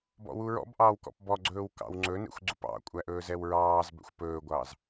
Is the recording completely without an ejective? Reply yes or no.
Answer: no